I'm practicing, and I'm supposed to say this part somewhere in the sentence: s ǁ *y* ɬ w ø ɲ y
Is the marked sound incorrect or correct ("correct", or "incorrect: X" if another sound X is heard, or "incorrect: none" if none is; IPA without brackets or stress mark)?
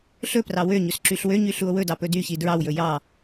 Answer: correct